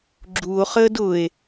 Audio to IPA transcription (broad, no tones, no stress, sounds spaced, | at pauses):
ɡ͡ǁ u o̯ χ əː d ʊ e̯